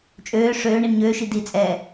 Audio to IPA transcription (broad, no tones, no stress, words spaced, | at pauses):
t͡ʃʼøː ʂøː ɳinɲøːʃi dit͡sʼɛː